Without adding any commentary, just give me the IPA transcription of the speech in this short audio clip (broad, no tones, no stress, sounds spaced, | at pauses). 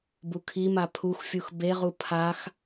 b u kʰ i m a pʰ u x fʲ u x b e ʁ u pʰ a x